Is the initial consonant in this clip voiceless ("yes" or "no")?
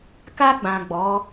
yes